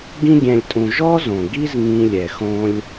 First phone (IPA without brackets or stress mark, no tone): ɡ